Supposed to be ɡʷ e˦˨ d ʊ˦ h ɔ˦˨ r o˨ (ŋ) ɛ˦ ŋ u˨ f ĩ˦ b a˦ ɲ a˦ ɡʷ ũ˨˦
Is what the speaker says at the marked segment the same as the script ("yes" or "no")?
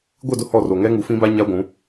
yes